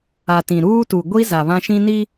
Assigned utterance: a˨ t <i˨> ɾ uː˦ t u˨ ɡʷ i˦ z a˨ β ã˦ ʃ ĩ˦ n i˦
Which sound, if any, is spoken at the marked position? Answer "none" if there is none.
ĩ˨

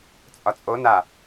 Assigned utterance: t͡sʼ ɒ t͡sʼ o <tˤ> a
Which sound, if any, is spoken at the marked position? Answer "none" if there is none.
n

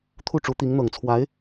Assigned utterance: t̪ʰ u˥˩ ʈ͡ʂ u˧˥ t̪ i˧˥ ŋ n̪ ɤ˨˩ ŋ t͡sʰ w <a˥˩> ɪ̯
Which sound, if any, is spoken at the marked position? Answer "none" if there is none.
a˧˥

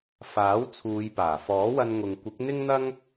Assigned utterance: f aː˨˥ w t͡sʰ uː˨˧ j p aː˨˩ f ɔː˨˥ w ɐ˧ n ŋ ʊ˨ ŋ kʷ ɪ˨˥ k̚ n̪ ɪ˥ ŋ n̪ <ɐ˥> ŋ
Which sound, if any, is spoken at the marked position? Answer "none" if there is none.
ɐ˥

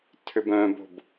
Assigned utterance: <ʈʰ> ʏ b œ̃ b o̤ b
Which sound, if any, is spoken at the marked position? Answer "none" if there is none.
tʰ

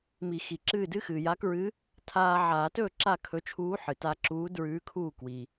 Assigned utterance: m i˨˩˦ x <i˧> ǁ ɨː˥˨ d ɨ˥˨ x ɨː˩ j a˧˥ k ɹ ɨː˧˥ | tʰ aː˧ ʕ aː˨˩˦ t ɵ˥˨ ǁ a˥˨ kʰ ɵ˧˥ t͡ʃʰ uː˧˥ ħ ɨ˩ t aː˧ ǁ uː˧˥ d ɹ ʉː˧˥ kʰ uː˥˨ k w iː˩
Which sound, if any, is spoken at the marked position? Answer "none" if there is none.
i˩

